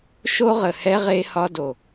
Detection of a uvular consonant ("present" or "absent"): present